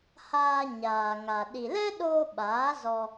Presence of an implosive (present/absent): present